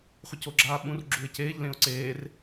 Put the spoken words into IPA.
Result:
χʷɯcoɡ͡ǁaːɓũr ɡ͡ǁuɪ̯ceːʎ lẽʊ̯ǀeːr

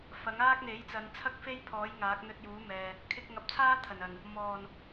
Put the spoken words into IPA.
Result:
fɐ˨˥ŋaː˥k̚ n̪e˨˥jt͡sɐ˨˧n t͡sʰɐ˥k̚fe˥jpʰɔː˨˥j ŋaː˨˥k̚n̪ɵ˧t̚juː˨˥mɛː˨ | kʰɪ˧k̚ŋɐ˨˥p̚t͡sʰaː˥ t̪ʰɐ˨˩nɐ˨˩n | mɔː˨˩n

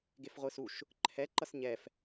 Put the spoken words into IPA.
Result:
ɡefʁʷɯsuʃ | ǃʰɛ ǃʌsɲɛf

